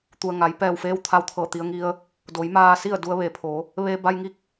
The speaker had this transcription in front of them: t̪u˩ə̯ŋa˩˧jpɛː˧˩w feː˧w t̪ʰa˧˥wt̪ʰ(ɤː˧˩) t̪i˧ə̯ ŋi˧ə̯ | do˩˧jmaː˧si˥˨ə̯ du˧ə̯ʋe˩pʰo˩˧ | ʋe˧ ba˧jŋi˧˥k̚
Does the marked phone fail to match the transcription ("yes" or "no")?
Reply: no